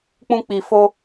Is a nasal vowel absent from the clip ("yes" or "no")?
no